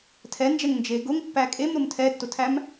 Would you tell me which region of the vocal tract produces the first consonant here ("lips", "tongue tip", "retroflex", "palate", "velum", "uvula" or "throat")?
tongue tip